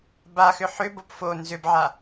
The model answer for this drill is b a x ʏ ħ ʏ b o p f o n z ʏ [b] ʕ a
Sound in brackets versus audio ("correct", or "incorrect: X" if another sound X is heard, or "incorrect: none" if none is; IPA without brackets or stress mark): correct